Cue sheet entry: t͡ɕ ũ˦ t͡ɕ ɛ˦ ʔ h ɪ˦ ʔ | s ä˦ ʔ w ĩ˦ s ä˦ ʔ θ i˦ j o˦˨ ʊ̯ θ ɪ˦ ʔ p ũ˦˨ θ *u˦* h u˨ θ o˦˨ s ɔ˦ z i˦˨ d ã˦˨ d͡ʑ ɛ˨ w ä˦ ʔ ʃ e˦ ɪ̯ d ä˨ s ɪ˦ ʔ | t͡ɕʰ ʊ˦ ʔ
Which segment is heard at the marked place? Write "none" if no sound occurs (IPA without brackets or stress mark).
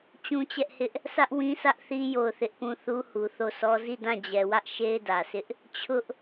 u˦